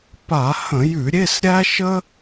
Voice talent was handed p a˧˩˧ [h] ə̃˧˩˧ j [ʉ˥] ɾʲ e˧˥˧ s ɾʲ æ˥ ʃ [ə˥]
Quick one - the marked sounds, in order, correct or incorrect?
correct, incorrect, correct

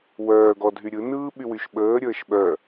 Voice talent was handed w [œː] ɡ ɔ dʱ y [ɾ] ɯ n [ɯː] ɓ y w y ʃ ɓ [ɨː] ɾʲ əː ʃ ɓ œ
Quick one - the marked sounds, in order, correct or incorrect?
correct, incorrect, correct, incorrect

